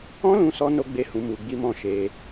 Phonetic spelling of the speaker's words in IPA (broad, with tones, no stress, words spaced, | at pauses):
ɔ̃˦lũ˧sɔ˧ no˦ɡ͡be˦hũ˧ mu˧ɡ͡bi˦mɔ̃˦˨ ʃe˧